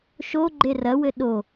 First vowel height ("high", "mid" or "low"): mid